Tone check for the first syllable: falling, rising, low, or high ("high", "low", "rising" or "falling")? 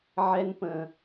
high